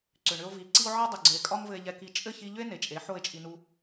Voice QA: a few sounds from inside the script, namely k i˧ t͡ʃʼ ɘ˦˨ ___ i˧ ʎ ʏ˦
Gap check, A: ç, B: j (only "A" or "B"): A